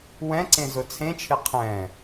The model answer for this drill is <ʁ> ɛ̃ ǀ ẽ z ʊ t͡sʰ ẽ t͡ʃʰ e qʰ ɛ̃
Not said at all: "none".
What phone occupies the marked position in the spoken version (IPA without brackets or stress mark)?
w